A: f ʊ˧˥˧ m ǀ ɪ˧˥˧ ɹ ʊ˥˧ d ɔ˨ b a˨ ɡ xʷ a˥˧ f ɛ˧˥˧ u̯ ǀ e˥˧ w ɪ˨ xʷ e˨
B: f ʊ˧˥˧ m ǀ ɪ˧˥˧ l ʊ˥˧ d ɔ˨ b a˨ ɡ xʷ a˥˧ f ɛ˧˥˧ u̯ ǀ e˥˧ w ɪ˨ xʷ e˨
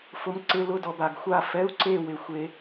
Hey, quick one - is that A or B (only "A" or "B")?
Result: B